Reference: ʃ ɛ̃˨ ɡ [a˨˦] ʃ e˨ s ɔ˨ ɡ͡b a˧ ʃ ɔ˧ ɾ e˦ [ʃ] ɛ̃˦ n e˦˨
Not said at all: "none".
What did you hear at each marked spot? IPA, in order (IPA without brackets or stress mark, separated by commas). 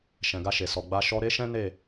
a˧, ʃ